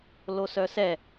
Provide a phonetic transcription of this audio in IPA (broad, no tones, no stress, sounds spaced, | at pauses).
l o s œ s ɛ